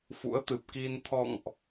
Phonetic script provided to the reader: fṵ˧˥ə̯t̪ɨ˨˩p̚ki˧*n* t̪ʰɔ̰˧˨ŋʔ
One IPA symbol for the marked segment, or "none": n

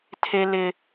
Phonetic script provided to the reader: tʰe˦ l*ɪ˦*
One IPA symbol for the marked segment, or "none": ɪ˦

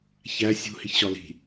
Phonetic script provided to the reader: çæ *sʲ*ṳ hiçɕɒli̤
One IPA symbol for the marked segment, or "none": sʲ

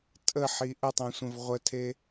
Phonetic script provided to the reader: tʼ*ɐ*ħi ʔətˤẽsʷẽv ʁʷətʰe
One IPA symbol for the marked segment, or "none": ə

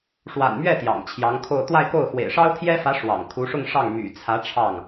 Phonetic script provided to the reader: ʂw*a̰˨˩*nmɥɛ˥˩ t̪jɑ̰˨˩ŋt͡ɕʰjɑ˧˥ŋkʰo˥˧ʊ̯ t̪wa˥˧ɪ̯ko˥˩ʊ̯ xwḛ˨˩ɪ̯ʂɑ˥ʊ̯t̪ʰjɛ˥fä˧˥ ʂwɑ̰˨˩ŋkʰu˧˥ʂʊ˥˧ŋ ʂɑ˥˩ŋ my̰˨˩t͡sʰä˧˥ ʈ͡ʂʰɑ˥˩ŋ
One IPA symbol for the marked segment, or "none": a̰˨˩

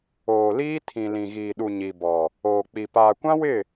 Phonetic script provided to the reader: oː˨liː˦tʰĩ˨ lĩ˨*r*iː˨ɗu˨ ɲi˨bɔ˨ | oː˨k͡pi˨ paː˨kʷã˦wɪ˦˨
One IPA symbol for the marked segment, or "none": ɣ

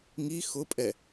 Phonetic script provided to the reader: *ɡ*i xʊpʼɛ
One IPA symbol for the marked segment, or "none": ŋ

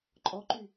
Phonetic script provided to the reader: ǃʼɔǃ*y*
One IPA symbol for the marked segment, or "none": y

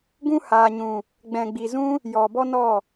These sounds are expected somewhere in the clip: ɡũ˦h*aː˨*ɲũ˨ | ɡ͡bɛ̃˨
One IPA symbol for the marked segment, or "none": aː˨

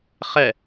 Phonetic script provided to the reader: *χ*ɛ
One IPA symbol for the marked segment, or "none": χ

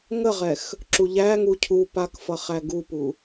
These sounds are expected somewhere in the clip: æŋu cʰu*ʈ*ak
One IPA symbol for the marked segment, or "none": p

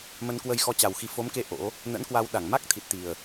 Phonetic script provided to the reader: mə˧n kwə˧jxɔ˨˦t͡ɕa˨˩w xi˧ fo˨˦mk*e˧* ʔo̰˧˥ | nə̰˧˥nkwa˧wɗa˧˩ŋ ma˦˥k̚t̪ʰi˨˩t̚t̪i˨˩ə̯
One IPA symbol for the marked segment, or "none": e˧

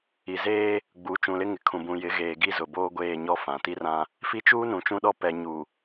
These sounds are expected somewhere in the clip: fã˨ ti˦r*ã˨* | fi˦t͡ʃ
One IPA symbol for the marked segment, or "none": ã˦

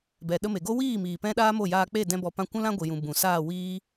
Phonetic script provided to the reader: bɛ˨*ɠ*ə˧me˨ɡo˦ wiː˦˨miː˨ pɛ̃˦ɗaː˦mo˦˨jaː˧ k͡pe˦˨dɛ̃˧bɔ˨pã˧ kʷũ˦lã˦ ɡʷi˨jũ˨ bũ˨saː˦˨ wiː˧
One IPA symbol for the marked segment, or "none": ɗ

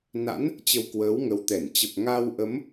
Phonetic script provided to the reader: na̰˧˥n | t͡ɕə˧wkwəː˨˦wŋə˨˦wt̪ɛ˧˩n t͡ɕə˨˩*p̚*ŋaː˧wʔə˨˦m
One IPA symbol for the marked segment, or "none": p̚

